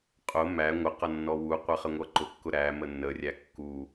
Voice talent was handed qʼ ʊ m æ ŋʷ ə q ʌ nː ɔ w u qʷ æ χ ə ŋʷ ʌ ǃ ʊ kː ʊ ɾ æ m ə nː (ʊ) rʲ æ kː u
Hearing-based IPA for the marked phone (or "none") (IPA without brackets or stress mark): ə